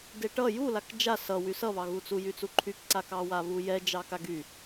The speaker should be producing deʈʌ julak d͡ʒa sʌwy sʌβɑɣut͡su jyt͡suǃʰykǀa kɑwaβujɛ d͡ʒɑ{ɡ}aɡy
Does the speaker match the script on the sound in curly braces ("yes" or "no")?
no